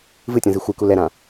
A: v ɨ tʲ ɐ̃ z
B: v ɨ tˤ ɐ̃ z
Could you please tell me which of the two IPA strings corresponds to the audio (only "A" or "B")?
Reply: A